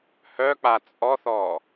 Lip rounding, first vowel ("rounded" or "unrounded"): rounded